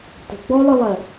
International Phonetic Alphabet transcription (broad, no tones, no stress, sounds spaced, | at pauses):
t ə̤ ɡ͡b ɔ lˠ ɨ lˠ ɜ